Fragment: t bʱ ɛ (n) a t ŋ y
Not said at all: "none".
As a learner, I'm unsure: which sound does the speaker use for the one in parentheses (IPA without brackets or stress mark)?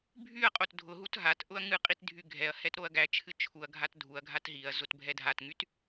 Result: dʱ